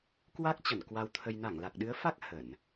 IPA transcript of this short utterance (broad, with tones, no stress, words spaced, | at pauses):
kwa˦˥k̚t͡ɕə˧˩n kwa˧wt̪ʰə˧j na˧˩ŋla˨˩k̚ɗɨ˨˦ə̯fa˦˥k̚ hə˧˩˨n